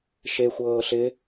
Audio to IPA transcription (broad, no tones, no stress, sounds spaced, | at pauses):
ʃ e xʷ ɤː ɬ ɪ